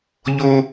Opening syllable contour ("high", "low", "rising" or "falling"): high